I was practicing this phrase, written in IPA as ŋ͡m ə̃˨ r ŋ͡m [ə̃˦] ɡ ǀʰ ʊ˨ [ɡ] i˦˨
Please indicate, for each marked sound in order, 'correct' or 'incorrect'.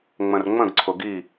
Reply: incorrect, correct

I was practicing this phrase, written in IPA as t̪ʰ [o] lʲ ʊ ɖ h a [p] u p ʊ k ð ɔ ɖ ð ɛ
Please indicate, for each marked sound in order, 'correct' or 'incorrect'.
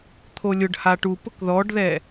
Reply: correct, incorrect

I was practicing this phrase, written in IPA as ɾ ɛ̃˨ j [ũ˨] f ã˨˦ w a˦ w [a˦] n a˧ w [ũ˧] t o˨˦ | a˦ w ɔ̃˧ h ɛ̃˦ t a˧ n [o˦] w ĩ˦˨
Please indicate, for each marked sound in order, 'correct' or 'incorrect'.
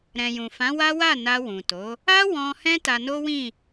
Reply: correct, incorrect, incorrect, correct

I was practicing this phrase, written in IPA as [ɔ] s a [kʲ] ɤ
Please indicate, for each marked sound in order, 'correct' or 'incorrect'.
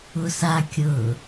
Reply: incorrect, correct

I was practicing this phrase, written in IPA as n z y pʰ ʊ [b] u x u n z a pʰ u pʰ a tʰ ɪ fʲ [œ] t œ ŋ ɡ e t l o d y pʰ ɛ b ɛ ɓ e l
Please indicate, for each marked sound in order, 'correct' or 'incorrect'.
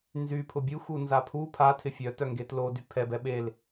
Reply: incorrect, correct

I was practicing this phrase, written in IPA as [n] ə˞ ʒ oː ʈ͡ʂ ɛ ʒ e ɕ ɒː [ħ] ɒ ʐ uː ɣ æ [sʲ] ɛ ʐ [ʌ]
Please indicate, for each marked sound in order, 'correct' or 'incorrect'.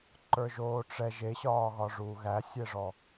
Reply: incorrect, incorrect, correct, incorrect

